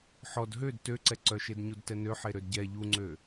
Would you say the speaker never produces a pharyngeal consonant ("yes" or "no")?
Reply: no